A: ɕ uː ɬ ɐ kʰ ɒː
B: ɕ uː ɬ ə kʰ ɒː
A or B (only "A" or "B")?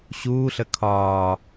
B